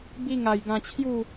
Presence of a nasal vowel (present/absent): present